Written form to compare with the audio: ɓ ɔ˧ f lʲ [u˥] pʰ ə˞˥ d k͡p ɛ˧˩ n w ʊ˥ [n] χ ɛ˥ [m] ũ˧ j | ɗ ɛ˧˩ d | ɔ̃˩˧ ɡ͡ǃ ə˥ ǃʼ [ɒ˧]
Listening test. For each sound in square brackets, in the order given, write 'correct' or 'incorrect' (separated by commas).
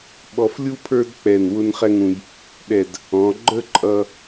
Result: correct, correct, incorrect, incorrect